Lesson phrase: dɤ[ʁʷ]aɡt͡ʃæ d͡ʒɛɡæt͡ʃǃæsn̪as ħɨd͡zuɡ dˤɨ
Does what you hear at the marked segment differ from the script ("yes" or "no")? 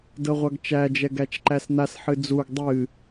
no